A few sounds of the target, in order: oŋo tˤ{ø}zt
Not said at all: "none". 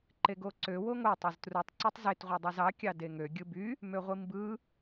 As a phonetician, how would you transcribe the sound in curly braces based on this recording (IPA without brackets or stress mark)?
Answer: ø